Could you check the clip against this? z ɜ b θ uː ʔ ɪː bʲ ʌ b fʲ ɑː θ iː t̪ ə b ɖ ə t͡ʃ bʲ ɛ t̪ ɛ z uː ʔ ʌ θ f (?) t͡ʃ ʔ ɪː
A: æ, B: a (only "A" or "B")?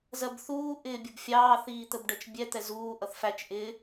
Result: A